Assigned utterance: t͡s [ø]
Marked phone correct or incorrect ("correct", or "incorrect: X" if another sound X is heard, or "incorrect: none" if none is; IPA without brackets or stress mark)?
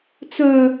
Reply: incorrect: œ